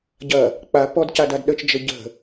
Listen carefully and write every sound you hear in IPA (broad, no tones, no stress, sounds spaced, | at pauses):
ɟ ɐ | k͡p a p ɔ d c a d a d ɗ ə t͡ʃ d͡ʒ ə ɟ ə̤